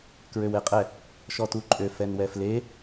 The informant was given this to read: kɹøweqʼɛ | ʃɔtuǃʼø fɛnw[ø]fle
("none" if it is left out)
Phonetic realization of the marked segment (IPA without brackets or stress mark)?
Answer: ɛ